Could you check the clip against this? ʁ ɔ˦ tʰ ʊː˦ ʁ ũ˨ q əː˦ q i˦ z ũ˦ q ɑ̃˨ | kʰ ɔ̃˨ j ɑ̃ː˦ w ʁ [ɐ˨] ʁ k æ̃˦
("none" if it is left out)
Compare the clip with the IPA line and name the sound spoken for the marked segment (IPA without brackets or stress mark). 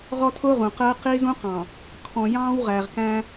æ˨